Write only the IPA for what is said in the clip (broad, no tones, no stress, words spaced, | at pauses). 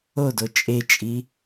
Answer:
odo t͡ʃʼet͡ʃʼi